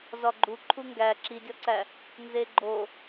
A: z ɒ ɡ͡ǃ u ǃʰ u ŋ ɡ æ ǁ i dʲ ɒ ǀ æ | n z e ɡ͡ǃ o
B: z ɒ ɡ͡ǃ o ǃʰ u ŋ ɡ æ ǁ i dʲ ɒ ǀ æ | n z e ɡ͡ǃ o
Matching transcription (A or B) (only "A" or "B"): A